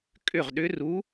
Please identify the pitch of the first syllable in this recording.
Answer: falling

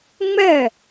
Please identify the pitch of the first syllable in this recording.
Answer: falling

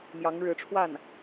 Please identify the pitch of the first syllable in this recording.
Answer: rising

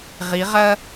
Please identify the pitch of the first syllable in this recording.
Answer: rising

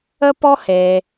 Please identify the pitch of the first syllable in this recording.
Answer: high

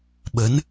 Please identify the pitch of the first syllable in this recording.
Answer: rising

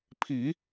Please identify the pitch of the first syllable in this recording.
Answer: low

